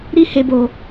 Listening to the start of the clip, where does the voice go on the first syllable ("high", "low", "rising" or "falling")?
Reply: high